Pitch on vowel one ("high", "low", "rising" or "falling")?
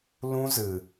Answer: high